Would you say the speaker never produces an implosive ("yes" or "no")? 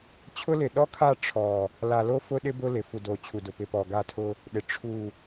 no